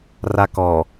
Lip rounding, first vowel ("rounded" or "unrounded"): unrounded